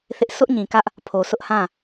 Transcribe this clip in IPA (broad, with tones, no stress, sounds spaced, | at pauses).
θ ɪ˦ ʔ sʰ ʊ˦ ʔ ɲ ĩ˨ k ä˦ ʔ | pʰ o˨ sʰ ʊ˦ ʔ h ã˦˨